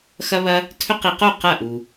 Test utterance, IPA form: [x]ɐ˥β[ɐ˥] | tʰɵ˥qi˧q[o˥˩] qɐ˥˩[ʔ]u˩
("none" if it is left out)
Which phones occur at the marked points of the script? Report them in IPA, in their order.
x, ɐ˥, o˥˩, ʔ

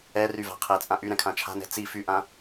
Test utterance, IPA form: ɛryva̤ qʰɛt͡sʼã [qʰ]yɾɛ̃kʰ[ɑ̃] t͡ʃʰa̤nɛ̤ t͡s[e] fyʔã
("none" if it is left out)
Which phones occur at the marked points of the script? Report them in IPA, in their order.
ʔ, ã, i

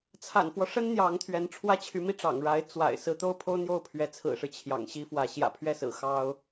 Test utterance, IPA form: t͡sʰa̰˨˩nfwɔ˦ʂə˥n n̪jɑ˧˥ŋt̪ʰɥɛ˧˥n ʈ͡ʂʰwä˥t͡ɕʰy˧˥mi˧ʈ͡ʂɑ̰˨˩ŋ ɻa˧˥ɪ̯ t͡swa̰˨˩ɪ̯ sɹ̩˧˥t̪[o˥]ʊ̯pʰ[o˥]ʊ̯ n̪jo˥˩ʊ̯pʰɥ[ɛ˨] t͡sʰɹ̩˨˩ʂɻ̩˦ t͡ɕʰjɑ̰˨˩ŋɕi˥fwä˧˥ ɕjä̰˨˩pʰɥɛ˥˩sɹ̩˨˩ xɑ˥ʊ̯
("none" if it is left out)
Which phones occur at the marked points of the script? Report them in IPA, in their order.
o˥, o˥, ɛ˧˥

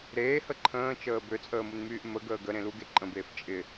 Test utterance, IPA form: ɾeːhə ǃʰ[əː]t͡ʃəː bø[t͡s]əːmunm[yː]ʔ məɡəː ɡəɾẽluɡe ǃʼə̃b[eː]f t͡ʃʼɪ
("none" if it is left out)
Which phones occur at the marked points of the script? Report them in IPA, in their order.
ə̃ː, t͡sʼ, yː, eː

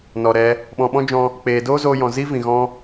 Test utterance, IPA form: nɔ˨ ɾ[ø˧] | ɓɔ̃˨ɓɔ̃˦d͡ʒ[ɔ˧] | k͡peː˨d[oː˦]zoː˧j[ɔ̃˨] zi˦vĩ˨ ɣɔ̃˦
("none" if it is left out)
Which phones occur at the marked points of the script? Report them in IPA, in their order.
ɛ˧, ɔ̃˧, oː˦, ɔ̃˨

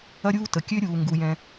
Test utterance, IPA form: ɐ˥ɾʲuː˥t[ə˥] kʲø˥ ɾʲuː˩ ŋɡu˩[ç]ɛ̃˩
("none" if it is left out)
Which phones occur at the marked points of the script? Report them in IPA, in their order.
ə˩, j

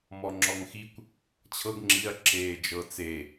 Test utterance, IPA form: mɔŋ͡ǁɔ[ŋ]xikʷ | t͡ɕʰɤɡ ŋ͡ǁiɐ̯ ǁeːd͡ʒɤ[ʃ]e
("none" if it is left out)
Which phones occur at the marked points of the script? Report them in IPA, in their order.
ŋ, t͡s

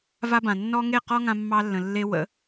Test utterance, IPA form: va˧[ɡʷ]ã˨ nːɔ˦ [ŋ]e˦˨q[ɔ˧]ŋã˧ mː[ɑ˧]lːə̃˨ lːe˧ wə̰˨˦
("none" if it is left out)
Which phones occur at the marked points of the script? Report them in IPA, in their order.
b, ŋ, ɔ˦, ɑ˧

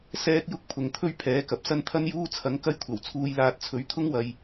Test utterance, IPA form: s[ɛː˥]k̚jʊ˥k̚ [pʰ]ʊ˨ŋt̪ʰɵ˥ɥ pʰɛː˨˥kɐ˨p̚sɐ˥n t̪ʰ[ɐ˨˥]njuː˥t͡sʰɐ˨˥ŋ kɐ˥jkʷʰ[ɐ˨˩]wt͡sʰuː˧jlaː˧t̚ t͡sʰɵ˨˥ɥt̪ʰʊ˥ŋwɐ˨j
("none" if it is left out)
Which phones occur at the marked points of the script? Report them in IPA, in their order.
ɛː˥, pʰ, ɐ˥, ɐ˨˩

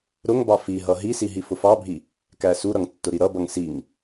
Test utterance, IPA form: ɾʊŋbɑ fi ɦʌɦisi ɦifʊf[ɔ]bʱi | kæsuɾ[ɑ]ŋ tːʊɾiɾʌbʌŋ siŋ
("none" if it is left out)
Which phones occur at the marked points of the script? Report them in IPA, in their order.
ɑ, ʌ

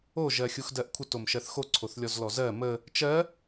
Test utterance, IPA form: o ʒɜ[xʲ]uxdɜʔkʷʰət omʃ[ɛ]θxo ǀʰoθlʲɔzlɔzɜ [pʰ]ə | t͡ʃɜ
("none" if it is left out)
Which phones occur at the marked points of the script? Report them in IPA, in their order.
xʲ, ɜ, m

